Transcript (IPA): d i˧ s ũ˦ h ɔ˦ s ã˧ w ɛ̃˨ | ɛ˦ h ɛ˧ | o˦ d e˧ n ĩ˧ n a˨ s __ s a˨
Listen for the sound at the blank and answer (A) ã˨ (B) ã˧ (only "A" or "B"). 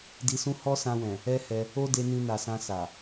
B